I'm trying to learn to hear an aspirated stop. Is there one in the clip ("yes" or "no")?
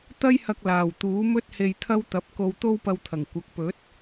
yes